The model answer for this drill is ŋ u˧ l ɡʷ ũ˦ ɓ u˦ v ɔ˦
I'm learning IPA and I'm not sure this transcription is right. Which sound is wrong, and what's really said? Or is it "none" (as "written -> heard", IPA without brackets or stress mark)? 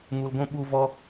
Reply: none